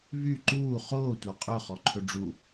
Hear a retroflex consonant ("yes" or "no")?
yes